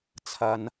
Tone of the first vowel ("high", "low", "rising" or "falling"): low